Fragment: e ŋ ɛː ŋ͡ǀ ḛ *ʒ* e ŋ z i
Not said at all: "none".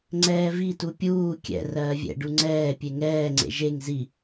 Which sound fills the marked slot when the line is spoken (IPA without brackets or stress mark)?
ʒ